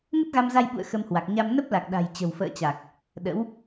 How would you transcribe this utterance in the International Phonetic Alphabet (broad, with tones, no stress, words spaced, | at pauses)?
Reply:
ŋə˦˥t̚ɣa˧mza˧j ɓṵ˧˨ə̯ xə˧mhwa˨˩k̚ ɲa˧m nə˦˥p̚la˨˩k̚ ɗa̤˨˩jt͡ɕə̤˨˩w fə̰ː˧˨t͡ɕa˨˩k̚ | ɗə̰˧˥w